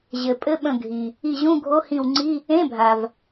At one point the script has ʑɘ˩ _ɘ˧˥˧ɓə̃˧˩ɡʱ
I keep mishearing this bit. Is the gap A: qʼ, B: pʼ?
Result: B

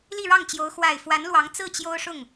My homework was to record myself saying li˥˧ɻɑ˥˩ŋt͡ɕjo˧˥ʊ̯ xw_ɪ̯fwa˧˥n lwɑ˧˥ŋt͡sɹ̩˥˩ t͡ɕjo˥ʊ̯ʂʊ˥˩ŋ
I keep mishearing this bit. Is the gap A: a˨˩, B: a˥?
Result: A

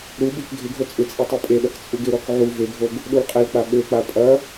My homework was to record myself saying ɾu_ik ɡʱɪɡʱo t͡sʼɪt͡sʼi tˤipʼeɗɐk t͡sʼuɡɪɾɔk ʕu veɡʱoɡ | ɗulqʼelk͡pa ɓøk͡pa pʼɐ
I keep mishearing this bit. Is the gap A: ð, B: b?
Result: B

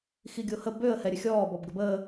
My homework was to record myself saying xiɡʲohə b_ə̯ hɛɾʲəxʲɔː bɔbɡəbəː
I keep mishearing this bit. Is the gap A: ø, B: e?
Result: A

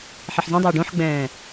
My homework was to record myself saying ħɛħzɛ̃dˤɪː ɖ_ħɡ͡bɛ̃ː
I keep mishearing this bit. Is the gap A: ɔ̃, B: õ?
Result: B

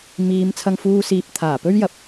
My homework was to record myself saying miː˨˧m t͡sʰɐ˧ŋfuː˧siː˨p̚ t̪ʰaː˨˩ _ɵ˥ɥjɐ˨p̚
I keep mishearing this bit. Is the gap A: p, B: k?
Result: A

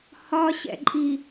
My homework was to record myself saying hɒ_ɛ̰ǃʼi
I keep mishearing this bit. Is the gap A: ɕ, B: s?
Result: A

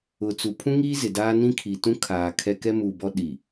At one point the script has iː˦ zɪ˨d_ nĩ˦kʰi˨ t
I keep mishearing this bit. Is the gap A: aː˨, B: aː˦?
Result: B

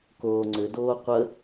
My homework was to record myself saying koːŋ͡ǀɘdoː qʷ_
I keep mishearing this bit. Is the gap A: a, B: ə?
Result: B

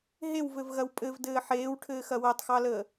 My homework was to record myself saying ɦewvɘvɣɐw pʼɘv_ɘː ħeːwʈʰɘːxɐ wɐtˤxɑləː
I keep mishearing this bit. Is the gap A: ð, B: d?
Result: B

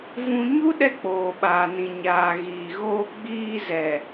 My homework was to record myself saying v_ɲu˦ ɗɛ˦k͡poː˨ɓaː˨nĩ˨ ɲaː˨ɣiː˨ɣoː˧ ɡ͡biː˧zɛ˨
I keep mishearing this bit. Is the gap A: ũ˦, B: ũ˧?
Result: B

